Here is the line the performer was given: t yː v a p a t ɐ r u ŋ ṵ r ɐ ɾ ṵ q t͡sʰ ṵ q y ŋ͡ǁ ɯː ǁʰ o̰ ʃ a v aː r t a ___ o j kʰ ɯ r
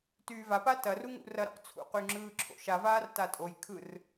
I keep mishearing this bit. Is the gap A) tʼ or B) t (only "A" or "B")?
A